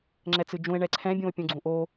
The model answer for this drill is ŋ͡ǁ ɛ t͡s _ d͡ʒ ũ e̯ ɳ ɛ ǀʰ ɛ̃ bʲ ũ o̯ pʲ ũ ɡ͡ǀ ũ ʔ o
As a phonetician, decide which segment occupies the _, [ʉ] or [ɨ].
ɨ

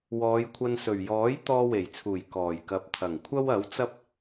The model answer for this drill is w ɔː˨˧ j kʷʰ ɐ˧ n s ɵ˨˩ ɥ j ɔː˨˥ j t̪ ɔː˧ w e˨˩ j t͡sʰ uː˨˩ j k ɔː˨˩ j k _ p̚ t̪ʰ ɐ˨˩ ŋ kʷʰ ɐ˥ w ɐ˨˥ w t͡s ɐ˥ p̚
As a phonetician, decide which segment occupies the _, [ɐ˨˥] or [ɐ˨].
ɐ˨˥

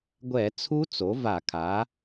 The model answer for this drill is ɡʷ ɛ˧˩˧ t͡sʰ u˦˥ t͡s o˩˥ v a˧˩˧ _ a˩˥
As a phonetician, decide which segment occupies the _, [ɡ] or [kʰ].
kʰ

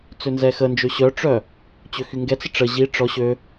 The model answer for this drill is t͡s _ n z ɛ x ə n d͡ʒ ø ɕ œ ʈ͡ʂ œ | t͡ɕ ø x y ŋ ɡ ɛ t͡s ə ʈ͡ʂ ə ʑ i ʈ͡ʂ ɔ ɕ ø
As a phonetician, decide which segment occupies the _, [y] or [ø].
ø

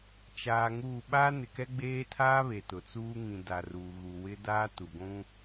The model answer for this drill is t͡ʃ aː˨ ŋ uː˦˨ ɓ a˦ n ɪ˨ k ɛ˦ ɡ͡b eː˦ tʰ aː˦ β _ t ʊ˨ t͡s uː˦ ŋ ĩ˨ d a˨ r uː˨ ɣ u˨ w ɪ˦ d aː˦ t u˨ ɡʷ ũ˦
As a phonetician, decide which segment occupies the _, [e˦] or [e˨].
e˨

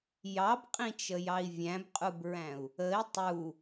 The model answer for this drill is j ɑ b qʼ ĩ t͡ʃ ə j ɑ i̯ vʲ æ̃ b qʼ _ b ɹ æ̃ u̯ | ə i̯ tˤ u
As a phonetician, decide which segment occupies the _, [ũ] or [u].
u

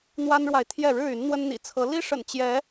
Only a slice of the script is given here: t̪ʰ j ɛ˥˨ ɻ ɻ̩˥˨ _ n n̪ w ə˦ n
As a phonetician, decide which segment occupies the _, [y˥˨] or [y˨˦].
y˨˦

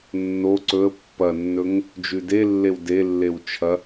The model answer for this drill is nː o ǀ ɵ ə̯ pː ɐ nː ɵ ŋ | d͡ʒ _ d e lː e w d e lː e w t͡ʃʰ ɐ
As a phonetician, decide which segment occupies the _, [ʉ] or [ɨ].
ʉ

